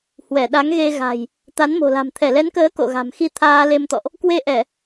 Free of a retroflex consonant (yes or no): yes